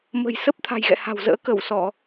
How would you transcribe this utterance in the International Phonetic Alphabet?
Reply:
m ə̤˨˩ j s ə˦˥ p̚ t̪ʰ a̤˨˩ j ɣ ɛ̰˧˨ h a̤˨˩ w z ə̰ː˧˥ k ə˧˩ w s ɔ˧˩˨

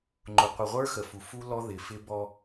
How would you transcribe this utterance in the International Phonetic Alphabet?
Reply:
ŋ͡ǃ ʊ˨ qʷ ɪ˨ ʁʷ ə˞˦ x ə˨ f u˨ f u˦ l ɔ˦ ð ɪ˨ f ɪ˦ b ɔ˦

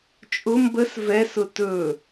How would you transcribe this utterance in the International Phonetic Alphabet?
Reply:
t͡ʃʼ ʊ m b ə s v ɛ s ʊ t ɵ

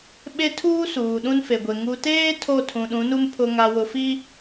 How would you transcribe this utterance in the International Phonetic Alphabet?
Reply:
ɓ e˦ tʰ uː˦ s uː˨ ɗ ũ˦ n f e˨ ɡʷ e˨ ŋ u˨ t eː˦ tʰ o˦˨ tʰ ũ˨ ɗ ũ˨˦ n u˦ m pʰ ʊ˨ ŋ a˨ w ʊ˨ f i˦

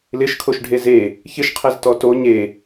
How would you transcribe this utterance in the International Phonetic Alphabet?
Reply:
l ɪ ʃ kʰ o ʃ ɖʱ e z e | ç ɪ ʃ qʰ ɛ z t ɔ t o ɲ e

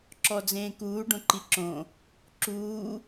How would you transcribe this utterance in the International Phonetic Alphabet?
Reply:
ǁ ɔ d͡z ẽː k uː ɖ õ ǃ i ǁ õ | ǁ uː

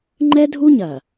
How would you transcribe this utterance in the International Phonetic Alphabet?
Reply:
ŋ͡ǃ ɛ˦ dʱ u˦ ɲ ɐ˨

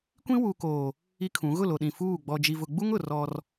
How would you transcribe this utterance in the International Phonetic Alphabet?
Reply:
kʷ ĩ˦ w u˨ k oː˨ | i˦ kʰ ũ˨˦ ɣ ʊ˦˨ l o˨ ɗ ĩ˨ f uː˦˨ ɡ͡b ɔ˨ d͡ʒ i˨ v ʊ˨ ɡ͡b u˦ ŋ ʊ˨ r ɔ˦ r

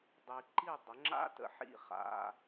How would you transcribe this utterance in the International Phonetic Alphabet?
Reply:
dˤ i˨ ǃ i˥˩ dˤ ə˩˥ ŋ͡ǁ a̰˦˥ t ə̰˨ ħ ḭ˥˩ χ a̰˧˥˧

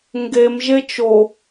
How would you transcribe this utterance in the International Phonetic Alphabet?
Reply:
ŋ ɡ e m ʒ e t͡ʃ o

